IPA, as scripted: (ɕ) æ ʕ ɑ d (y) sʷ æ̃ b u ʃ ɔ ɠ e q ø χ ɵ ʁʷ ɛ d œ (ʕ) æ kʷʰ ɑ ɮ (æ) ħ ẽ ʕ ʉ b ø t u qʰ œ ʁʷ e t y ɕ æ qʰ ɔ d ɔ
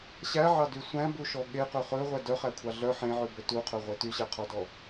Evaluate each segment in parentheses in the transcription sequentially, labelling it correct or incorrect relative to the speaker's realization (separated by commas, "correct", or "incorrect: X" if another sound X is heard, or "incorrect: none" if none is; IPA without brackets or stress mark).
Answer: correct, correct, incorrect: χ, incorrect: œ